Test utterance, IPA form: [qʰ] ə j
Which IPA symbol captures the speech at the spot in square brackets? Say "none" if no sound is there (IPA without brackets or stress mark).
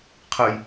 qʰ